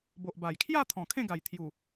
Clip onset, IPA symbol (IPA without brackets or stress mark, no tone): b